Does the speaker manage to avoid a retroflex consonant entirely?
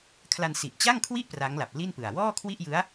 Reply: yes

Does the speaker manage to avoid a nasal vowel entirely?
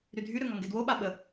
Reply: yes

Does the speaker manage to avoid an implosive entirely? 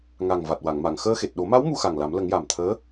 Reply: no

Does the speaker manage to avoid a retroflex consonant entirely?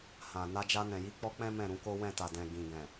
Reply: yes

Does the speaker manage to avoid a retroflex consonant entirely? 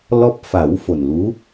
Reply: yes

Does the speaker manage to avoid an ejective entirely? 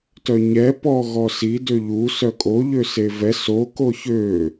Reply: no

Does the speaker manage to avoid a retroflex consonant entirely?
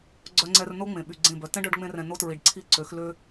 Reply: no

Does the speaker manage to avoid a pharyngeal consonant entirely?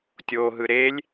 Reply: yes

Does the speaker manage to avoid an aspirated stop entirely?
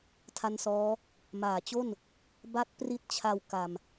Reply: no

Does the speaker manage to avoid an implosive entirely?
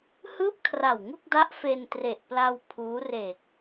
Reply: yes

